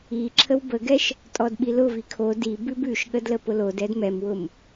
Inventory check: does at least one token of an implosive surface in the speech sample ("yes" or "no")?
yes